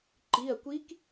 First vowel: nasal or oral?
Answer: oral